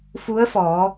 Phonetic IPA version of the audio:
f u˧˥ ə̯ f ɔː˩˧

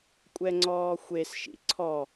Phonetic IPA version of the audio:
kʷʼ ɛ ŋ͡ǀ ɔː xʷ e s ʃ ḭ ǀʰ ɔ

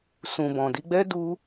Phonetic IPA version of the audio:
s ũ˨ b ɔ̃˨ d i˧ ɡ͡b ɛ˦ d u˦

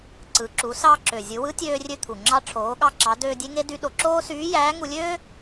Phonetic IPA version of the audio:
ǀ ɯ˩˧ ǁ u˩˧ s ɑ˧ ǁ ø˩ zʲ ɯ˩˧ w ɯ˧˥ tʲ øː˧ rʲ ø˧ t̪ʰ u˩ ŋ͡ǁ ɑ˧ ʈ͡ʂʰ oː˩˧ ɠ ɑ˧ ǁ ɑ˩˧ d øː˧ dʲ e˧˥ ŋ e˧˥ d y˧˥ ɗ o˩˧ ǁ oː˥ s yː˧˥ j æː˧˥ ŋ u˧ lʲ øː˥

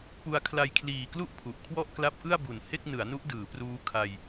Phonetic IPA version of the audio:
p u˧ a̯ kʰ l a˧ j kʰ l iː˨˩ k l u˥˩ ʔ pʰ u˨˩ ʔ kʰ w ɔ˥˩ ʔ k l a˦˥ p̚ ʔ ɯ˥˩ a̯ b u˩˦ n h e˥˩ k̚ n ɯ˩˦ a̯ n u˦˥ ʔ d ɯː˩˦ p r uː˦˥ kʰ a˧ j

